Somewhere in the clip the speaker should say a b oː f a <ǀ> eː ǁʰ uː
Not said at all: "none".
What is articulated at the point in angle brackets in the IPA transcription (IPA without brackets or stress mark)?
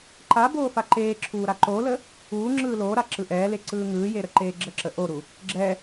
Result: ǃ